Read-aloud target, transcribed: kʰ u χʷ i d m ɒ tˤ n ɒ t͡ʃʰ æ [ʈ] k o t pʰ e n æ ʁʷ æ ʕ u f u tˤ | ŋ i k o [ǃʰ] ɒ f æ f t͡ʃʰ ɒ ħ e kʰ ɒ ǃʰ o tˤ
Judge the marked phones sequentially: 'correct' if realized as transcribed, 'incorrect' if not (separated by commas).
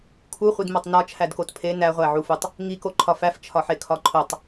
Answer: incorrect, correct